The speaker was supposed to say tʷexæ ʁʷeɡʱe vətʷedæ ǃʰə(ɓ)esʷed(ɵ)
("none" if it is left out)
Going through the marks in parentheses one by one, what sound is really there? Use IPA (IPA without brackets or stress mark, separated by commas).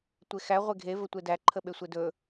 ɓ, ɵ